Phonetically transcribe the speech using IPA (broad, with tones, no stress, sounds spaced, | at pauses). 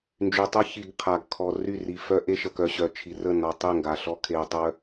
n d͡ʒ y˨ tˤ ə˦ ç i˨ ɡ qʰ a˨ ɡ kʰ ɔ˨ r y˦˨ r i˨ f œ˦ ʔ e˦ ʃ ə˨ k œ˨ ɕ œ˨ t͡ʃʰ i˨ r ə˦˨ n ɔ˨ tˤ e˦˨ ŋ ɡ a˨ ɬ ɔ˦ kʰ e˨ ɐ̯ tˤ œ˦